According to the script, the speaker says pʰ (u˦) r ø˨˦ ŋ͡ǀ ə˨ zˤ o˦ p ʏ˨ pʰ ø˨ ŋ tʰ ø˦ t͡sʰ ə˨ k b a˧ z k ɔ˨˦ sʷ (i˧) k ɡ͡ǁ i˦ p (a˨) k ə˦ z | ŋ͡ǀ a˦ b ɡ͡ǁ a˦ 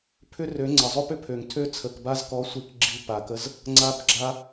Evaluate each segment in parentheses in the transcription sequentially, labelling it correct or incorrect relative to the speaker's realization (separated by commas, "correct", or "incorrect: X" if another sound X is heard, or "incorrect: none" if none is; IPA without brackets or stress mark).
incorrect: ʏ˦, incorrect: i˦, correct